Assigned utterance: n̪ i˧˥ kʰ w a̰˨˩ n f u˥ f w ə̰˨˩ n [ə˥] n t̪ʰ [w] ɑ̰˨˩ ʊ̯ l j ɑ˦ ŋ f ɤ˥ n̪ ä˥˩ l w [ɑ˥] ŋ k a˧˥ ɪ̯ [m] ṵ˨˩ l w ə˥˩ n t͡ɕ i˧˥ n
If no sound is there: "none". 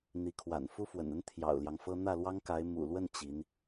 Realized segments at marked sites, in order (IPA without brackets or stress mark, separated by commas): ə˥, j, ɑ˥, m